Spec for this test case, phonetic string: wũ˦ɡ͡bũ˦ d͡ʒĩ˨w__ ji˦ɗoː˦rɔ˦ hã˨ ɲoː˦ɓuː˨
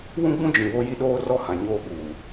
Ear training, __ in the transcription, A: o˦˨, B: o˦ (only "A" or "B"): B